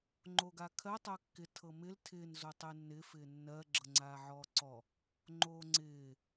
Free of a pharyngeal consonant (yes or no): no